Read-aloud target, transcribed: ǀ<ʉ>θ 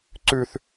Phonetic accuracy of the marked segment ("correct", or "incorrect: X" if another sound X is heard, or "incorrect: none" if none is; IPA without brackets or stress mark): correct